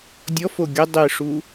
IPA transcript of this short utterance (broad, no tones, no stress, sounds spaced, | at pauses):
dʲ ɔ f o ɡʲ ə dˤ ɪ ʂ u